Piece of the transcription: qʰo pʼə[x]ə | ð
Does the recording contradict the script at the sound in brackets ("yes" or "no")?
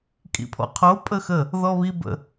no